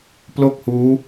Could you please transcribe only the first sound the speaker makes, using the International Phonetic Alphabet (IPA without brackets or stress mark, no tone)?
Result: p